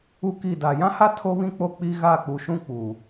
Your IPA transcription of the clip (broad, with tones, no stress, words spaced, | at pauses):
u˦ki˦˨ da˨jã˦ha˦ tʰo˦βĩ˦k͡po˦˨ k͡pi˦ɣa˦˨ k͡pu˨ʃũ˦ k͡puː˨